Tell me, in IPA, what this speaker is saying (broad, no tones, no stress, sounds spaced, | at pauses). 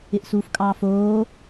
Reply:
ɪ ʔ s uː f kʼ ɑː f oː